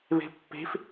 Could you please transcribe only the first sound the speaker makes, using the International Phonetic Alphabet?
β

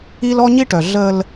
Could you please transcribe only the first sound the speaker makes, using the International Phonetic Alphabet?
i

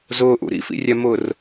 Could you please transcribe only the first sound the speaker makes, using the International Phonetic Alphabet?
z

